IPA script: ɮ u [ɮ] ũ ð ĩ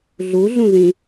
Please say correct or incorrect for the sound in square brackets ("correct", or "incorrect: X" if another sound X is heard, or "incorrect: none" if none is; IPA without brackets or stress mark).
correct